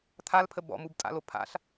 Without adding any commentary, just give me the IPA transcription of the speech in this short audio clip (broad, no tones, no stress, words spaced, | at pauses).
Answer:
t̪ʰalpʰə bɔ̰mubtʼa̰lo pʰa̰ɬ